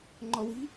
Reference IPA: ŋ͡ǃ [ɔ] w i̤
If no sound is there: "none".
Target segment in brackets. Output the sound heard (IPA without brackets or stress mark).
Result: ɔ